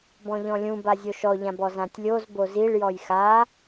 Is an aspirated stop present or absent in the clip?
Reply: absent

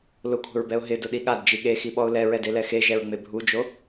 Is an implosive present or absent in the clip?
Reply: present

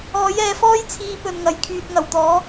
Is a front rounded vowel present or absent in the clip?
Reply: present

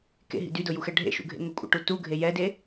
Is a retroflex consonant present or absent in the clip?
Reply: present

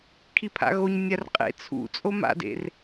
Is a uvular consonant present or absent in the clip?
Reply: present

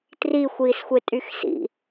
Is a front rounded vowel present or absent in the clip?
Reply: present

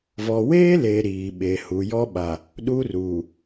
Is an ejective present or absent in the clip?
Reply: absent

